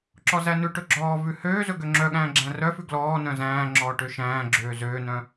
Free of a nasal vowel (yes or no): no